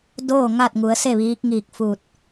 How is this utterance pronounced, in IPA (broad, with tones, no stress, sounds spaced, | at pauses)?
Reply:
d oː˥˨ ŋ a˥˨ t̚ ŋ u˩˧ ə̯ s e˥˨ ʋ iː˧˥ k̚ ŋ iː˧˩ k̚ f u˧˩ t̚